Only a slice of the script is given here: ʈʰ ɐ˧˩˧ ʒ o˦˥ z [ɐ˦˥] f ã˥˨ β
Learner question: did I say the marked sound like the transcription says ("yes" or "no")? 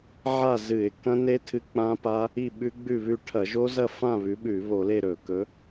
no